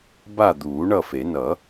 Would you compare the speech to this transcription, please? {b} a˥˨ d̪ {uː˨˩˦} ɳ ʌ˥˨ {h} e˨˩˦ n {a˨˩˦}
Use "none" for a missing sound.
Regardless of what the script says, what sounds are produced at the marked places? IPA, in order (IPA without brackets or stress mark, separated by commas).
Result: b, uː˨˩˦, f, ʌ˨˩˦